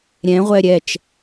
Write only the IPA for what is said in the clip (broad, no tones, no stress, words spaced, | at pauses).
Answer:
ɾʲɛ̃ ʁʷɛɾʲɛt͡ʃ